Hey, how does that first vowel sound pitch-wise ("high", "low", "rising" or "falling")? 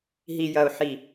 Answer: low